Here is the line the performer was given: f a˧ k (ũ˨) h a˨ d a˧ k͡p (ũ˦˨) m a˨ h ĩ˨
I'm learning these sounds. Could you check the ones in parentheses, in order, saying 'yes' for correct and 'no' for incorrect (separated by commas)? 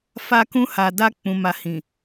no, no